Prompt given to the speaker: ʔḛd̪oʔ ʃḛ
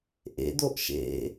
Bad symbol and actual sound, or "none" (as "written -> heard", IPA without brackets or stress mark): none